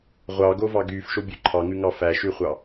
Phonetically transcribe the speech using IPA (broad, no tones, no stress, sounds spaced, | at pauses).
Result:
ʁʷ ɑː ɡ o v ɑ ɡ yː f ʃ o bʲ ʉ ǃʰ ɑ ŋ ʉ ŋ ɑ f æ ʃ ʉ χʷ ɑ